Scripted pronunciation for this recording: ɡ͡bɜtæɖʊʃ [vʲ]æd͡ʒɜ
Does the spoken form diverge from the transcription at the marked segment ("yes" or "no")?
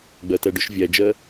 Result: no